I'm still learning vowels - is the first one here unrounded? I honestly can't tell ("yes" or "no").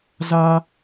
yes